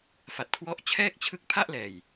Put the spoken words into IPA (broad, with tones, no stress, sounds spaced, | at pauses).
f a˨˩ t̚ kʰ w ɔ˦˥ ʔ t͡ɕʰ ɛː˥˩ k̚ t͡ɕʰ ɯ˦˥ k̚ pʰ a˥˩ ʔ l ɛː˨˩ j